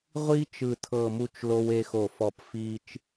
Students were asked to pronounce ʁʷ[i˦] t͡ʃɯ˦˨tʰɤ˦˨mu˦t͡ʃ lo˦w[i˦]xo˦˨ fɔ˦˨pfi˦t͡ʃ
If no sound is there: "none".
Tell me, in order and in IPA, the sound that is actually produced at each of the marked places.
i˦, e˦

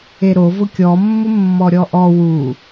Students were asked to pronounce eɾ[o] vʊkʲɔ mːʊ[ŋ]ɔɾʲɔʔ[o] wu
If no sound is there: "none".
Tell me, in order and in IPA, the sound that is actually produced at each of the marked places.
o, mː, ɔ

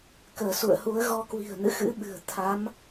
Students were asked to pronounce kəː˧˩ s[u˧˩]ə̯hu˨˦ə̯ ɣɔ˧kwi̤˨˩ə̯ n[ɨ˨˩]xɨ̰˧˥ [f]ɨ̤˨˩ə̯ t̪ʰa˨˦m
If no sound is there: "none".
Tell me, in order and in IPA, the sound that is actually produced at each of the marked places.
ṵ˧˨, ɨ̰˧˨, ɓ

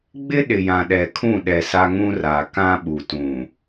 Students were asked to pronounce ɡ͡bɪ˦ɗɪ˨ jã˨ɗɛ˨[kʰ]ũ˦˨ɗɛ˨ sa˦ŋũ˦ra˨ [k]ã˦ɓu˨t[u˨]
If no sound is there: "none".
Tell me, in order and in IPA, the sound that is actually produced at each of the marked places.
kʰ, k, ũ˨

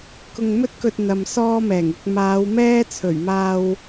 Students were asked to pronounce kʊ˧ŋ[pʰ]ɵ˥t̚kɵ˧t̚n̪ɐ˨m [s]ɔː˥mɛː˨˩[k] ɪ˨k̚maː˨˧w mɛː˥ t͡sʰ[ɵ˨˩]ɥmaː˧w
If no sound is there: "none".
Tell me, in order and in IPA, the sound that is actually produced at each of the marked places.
m, s, ŋ, ɵ˨˩

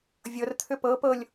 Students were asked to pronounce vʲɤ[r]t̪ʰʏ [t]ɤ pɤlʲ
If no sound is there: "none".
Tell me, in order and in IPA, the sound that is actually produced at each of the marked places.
r, p

